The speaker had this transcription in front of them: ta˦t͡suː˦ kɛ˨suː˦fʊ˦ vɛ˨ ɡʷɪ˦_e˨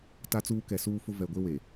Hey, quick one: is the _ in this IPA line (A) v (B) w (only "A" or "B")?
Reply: B